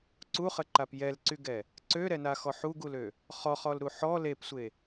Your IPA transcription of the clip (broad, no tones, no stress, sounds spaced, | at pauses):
ǀ u χ ə ǃ a p j ɛ l ǀ y ɡ ɛ | ǀ ø ɾ ɛ n a x ɔ ħ u ɡ u l ø | χ ɔ χ ɔ l ɾ u ħ ɔ l e p sʷ e